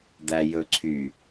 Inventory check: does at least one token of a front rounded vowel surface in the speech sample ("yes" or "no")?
yes